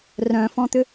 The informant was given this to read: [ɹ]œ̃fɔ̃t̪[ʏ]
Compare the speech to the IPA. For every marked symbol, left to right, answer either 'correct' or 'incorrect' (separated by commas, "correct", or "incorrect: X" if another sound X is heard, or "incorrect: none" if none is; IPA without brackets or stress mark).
incorrect: r, correct